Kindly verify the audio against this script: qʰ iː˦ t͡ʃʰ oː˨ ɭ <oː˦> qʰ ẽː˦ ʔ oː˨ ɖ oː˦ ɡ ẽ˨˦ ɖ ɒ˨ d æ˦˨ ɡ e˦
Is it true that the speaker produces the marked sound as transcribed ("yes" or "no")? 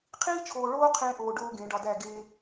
yes